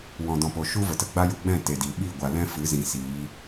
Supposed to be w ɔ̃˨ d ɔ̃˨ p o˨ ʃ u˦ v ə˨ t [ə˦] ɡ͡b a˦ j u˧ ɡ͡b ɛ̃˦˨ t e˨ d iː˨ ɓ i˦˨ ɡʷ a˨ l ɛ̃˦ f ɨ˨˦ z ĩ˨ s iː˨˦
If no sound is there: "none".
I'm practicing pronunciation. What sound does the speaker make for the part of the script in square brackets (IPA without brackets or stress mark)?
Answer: ə˧